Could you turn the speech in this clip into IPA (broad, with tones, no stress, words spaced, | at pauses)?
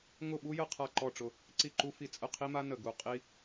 ŋʊ˥˨ɓu˥jə˥˨ qʰa˥˨ǃɔ˥˨ʈ͡ʂʊ˥˨ | ǀi˥˨ǃu˥fi˥˨ t͡sʼə˥˨qʰi˥ma˥ nə˥˨ɡu˥˨ qʼi˥